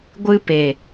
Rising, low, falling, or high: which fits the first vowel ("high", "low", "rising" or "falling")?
high